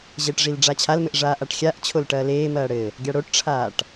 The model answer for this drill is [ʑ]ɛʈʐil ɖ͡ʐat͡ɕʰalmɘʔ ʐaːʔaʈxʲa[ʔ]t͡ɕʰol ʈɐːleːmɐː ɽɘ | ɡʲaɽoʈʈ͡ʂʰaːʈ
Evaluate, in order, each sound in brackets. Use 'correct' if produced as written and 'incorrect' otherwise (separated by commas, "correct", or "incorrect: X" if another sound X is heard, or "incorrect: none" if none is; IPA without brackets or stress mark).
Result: correct, correct